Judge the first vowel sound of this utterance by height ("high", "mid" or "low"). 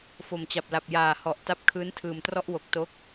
mid